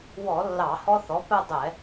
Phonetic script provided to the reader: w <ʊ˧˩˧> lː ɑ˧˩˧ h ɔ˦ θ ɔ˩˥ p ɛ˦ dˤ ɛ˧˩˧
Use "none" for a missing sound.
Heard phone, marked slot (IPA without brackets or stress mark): ɔ˧˩˧